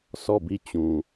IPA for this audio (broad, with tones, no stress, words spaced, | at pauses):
sɔ˦˨bi˦˨t͡ɕũ˨